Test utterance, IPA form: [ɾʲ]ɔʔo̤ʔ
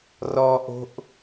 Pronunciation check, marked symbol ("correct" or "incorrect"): incorrect